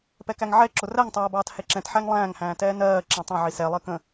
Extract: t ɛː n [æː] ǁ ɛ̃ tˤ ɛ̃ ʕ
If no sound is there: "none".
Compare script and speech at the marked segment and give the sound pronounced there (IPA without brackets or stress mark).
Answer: ɜː